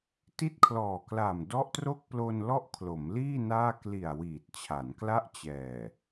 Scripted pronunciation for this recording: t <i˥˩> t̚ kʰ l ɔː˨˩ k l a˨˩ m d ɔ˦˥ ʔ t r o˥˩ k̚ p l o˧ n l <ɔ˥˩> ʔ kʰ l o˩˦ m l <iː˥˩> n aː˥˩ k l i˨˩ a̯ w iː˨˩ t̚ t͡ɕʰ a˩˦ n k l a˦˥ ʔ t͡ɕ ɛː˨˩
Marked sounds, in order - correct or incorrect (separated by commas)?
correct, correct, correct